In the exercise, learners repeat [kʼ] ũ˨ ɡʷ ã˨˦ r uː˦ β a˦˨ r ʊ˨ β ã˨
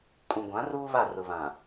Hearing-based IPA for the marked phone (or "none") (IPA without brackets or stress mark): kʼ